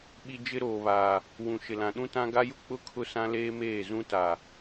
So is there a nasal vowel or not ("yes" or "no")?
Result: yes